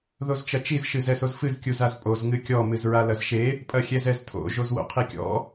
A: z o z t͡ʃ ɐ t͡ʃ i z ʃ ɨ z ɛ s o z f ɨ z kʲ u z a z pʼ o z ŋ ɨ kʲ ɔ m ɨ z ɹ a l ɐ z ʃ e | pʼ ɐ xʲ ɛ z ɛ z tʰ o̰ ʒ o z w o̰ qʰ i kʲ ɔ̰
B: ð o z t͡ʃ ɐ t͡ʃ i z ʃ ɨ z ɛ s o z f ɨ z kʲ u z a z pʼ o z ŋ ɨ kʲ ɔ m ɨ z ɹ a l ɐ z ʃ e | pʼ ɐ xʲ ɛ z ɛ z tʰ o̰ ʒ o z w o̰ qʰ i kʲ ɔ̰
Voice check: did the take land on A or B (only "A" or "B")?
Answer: B